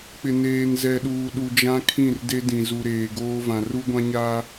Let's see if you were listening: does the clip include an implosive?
yes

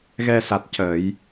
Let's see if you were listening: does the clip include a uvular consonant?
no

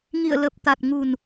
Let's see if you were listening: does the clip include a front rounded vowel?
no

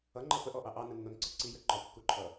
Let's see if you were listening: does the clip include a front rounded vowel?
no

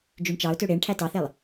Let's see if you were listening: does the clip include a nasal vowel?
no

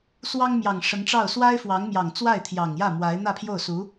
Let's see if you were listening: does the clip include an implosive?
no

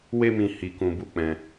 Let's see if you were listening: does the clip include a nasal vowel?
yes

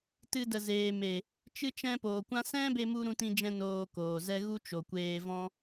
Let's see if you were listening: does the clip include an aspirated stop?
no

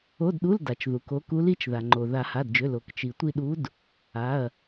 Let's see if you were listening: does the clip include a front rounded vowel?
yes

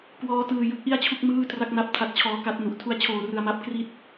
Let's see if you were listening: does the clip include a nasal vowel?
no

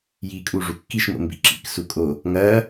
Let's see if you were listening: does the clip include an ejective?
yes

